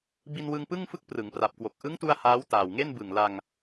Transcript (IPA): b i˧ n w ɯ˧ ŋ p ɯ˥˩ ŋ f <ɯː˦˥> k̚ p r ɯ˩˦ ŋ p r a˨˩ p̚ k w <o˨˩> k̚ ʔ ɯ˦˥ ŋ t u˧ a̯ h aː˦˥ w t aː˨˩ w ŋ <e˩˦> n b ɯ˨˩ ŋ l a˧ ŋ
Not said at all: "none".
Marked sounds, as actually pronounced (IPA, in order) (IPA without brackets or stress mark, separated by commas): ɯ˦˥, o˨˩, e˥˩